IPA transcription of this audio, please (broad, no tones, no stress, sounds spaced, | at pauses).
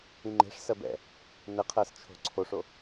ĩ ŋ͡ǃ e̤ ʂ s ɜ b ɛ̰ | n ɘ qʰ ɜ s t͡ʃʰ o̤ ǀʰ o ʂ o